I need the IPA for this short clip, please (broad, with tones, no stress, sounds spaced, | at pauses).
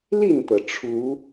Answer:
l i˥˨ n t̪ ɤ˩ ʈ͡ʂʰ u˨˦